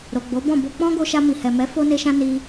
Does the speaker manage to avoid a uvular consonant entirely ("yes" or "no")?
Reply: yes